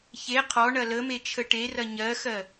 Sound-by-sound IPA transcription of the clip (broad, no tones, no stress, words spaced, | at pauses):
çe qʰɔɳɐ ləme t͡ʃʰəʈerɐ ɲɜxɜ